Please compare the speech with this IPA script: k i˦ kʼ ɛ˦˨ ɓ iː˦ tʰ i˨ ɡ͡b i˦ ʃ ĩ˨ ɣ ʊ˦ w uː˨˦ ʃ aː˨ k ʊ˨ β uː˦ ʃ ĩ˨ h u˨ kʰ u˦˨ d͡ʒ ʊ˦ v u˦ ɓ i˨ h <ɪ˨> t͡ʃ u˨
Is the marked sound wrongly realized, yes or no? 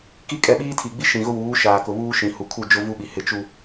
no